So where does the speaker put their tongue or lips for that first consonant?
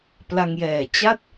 lips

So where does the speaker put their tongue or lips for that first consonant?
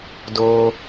tongue tip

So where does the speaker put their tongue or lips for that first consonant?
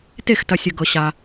tongue tip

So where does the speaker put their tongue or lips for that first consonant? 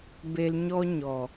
lips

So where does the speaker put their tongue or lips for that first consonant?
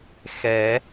velum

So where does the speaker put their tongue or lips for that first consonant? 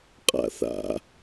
uvula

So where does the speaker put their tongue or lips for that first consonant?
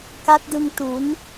velum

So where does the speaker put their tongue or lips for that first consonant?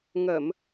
velum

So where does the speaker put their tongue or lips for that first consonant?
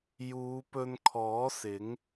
palate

